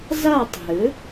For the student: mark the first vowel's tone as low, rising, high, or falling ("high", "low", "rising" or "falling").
falling